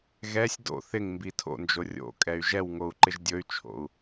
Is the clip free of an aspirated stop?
no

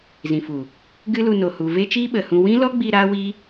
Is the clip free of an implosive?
no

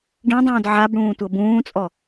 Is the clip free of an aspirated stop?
yes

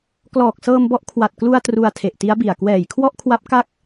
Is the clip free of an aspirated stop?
no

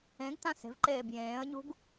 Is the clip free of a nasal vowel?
no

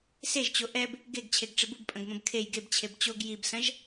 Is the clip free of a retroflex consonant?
no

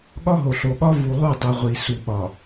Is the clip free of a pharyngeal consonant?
yes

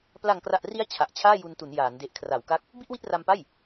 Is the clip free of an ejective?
yes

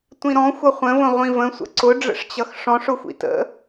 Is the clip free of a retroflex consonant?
no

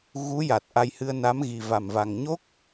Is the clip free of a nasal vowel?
yes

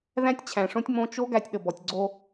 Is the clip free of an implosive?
no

